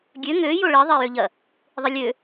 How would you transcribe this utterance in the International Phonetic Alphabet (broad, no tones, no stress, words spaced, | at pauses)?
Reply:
ɡʲø ŋø joɭe ðˤejøʎɐ | ðˤɨlʲø